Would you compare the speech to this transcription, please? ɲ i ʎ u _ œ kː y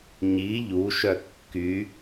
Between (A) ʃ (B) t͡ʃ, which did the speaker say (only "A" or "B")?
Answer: A